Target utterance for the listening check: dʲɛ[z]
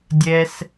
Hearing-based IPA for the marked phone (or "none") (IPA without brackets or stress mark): s